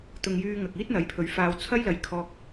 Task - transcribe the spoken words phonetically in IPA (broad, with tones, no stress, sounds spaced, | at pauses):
t̪ ʊ˧ ŋ j yː˧ ŋ ɐ˨ k̚ iː˥ t̚ n̪ ɐ˨˥ j pʰ ɵ˨˥ ɥ f aː˧ w t͡sʰ ɐ˥ j l ɐ˨˧ j kʰ ɔː˧ k̚